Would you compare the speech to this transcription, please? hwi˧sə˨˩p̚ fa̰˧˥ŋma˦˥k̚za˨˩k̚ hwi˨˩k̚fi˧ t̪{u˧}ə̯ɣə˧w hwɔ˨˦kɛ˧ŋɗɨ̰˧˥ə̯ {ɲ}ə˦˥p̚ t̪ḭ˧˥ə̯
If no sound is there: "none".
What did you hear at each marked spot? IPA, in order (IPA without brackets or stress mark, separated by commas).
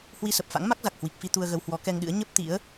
u˧, ɲ